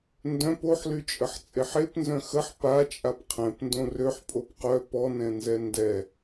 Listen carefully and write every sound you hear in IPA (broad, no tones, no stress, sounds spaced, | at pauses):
n d œ̃ p o ħ l y t͡ʃʼ ə ħ t͡sʼ e ħ e p n z œ̃ x ə ħ p a t͡ʃʼ a p qʰ ɛ̃ p n d õ r ø ħ pʼ o p q œ p ɔ n ɛ̃ n z ɛ n d ɛ